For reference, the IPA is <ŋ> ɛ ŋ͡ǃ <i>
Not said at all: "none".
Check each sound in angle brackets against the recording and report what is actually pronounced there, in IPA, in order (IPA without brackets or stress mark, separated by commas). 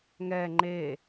ŋ, e